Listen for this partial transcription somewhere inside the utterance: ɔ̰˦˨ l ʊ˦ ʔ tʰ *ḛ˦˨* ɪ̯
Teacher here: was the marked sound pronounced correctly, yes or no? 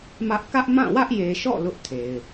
no